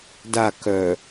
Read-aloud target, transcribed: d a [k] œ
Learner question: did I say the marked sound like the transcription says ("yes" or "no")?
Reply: yes